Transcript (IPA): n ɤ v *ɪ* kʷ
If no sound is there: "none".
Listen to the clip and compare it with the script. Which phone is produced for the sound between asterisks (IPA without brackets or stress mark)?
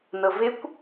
ɪ